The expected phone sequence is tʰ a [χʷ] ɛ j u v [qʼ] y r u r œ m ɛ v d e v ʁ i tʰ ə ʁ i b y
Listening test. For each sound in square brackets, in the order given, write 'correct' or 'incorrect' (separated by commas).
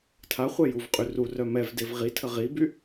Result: correct, correct